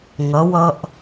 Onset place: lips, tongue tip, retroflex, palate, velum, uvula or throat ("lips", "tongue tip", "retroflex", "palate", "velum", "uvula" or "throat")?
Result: velum